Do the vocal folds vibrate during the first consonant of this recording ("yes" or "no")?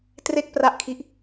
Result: no